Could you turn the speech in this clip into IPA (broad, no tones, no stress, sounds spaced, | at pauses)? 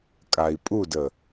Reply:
kʼ a i̯ pʼ u d ə